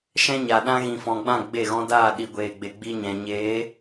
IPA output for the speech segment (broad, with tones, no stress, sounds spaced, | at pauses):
ʃ ɛ̃˦ ɲ a˨ ɗ ã˦ ɣ ĩ˨ f ɔ̃˨ ɡ͡b ã˦˨ ɡ͡b e˦˨ ɣ ɔ̃˦ d aː˦˨ ɗ i˨ ɡʷ eː˨ ɡ͡b e˨ ɡ͡b i˧ ɲ ɛ̃˨ ɲ eː˨˦